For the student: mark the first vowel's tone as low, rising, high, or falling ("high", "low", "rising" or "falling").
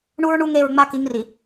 high